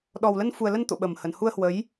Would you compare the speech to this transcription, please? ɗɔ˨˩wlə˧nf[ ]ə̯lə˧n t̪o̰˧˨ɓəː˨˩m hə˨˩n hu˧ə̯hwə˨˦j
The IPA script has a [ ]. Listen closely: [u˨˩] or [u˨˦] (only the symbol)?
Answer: u˨˩